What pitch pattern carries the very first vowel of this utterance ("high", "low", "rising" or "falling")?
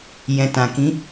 low